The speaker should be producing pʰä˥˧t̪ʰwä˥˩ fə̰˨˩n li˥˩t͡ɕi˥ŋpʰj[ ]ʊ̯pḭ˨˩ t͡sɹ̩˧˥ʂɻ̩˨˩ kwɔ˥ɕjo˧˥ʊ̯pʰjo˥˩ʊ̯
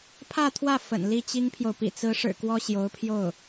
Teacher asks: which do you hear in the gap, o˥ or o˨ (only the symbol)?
o˨